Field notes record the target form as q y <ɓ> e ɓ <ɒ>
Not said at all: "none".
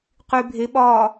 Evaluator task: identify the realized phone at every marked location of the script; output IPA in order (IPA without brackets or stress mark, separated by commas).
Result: bʱ, ɒː